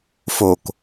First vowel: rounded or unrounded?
rounded